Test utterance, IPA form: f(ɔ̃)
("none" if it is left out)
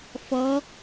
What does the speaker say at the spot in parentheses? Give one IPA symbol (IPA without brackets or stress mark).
ɔ